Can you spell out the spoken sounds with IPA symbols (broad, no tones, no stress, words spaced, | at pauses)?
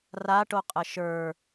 raʈoqʼə ʃə˞